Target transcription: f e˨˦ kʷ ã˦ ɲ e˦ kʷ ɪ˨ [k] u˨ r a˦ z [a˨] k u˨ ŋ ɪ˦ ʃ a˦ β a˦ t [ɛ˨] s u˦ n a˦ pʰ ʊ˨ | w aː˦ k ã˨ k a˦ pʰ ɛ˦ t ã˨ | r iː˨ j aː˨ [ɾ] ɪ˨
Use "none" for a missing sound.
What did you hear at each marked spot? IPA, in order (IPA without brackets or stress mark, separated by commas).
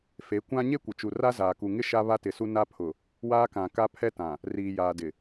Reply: t͡ʃ, aː˨, ɪ˨, d